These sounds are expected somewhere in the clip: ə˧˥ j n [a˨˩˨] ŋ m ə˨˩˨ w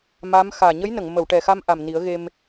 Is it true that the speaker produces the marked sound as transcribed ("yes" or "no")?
no